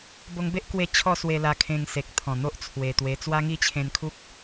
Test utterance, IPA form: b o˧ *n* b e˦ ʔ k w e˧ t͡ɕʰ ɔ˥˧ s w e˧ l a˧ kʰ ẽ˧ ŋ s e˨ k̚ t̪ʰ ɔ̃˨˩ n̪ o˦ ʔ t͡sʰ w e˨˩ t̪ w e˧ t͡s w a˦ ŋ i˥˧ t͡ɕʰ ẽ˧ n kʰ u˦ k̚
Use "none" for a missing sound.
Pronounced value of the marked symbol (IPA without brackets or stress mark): ŋ